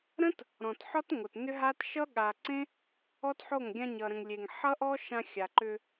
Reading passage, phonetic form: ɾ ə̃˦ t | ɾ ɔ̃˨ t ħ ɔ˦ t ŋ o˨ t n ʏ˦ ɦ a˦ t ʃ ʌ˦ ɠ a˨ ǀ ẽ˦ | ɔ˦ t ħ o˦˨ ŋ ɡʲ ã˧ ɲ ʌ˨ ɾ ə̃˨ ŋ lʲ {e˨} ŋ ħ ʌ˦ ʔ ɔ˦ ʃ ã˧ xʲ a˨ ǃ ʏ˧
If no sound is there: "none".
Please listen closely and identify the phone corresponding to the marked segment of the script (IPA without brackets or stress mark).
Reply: e˨